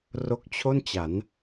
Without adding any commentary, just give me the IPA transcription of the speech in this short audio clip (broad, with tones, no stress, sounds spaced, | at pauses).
r o˦˥ k̚ t͡ɕʰ o˥˩ n t͡ɕ a˩˦ n